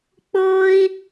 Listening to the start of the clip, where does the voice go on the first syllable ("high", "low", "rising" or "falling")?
high